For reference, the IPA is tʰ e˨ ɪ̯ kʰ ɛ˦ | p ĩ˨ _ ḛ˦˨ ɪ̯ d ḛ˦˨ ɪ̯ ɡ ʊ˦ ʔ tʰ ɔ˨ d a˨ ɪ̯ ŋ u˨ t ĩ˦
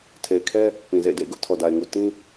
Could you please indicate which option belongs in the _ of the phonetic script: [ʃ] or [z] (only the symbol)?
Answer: z